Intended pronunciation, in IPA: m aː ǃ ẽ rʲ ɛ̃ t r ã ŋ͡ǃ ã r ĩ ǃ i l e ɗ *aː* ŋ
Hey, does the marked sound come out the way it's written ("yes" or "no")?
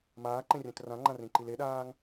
yes